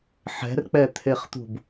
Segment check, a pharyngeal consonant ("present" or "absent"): present